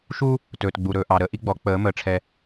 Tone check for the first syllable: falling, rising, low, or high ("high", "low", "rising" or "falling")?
high